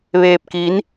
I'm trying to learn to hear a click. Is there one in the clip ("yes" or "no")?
no